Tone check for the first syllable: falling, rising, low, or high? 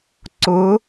rising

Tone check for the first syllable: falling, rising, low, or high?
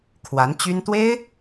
rising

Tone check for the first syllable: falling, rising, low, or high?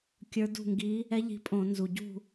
rising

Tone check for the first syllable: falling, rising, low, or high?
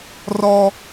high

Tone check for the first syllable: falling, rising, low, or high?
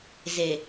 low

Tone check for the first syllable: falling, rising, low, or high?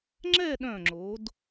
falling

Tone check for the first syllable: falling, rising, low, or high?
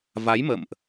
rising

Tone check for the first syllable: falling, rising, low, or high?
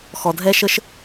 low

